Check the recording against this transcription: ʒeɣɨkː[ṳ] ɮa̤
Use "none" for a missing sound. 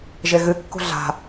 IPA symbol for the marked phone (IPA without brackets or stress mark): ṳ